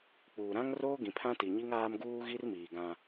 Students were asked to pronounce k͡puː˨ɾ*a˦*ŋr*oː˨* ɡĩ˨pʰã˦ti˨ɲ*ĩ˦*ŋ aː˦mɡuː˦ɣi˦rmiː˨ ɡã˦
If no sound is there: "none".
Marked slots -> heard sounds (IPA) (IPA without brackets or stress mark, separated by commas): ã˦, oː˦, i˦